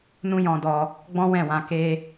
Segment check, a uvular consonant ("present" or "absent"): absent